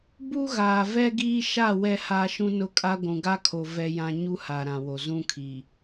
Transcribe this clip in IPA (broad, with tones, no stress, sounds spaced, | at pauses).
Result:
b u˦ ɣ aː˨ v ɛ˦ ɡ iː˦ ʃ a˦˨ w ɛ˦ h aː˦ ʃ ũ˦ n ʊ˦ kʼ a˦ ɡʷ ũ˨ ɡ a˦ kʰ o˨ v ɛ˦ j ã˦ ɲ u˦ h a˨ ɾ ã˨ w o˨ z ũ˦ kʰ i˨